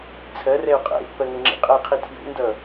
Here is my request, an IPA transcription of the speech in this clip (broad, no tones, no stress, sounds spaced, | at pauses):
t͡sʰ ɜ r ɛ u̯ qʼ ɛ̰ i̯ pː ɜ ŋ ɘ ŋ͡ǁ ḭ qʼ ɜ i̯ qʰ i tʰ j ṵ n d ʌ